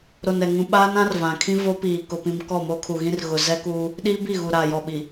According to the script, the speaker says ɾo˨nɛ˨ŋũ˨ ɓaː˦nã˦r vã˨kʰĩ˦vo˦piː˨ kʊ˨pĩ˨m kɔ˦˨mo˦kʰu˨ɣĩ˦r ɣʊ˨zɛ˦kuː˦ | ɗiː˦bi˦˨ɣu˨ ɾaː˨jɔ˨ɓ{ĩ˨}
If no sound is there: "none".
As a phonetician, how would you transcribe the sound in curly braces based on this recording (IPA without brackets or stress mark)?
i˨